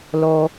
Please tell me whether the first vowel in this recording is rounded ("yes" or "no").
yes